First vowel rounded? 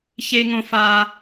no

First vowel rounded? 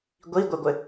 no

